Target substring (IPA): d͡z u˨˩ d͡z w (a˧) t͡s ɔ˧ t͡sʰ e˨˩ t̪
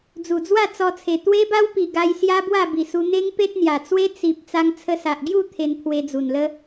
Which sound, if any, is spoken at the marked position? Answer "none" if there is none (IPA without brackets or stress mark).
a˥˧